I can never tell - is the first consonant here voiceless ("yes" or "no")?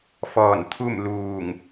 yes